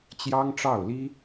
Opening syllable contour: high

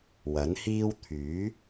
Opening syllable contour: rising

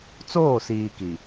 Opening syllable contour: falling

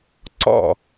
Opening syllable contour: falling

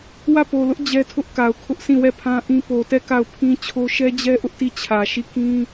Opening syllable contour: falling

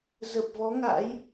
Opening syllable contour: low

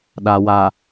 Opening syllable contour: low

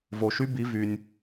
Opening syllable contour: low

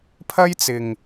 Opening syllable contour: high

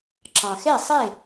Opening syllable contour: low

